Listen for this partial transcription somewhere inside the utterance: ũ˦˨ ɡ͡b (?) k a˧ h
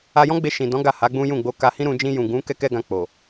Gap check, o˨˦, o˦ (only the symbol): o˨˦